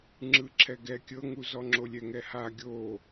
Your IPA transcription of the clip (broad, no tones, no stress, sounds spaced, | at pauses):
ŋ͡ǁ ɯ ǁʰ ɛ ɡ ɛ kʲ ɤ ŋ u z ɔ ŋ͡ǁ o lʲ ɛ ŋ ɛ h a ɡʲ o